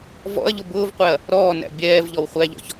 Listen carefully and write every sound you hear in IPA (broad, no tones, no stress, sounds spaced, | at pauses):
v ɔ̰ ɐ̯ ʎ ʊ b ʊː v qʷ ɛ ɐ̯ | ɾ ɔː n æ̰ bʲ ɛː v ʎ ɔ w χʷ æ ʎ ɔ̰ ç